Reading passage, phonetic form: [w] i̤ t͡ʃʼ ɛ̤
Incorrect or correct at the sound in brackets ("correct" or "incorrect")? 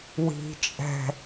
correct